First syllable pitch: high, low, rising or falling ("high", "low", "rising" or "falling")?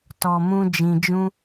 low